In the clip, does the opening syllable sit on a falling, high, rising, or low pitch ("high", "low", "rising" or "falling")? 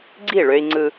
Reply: falling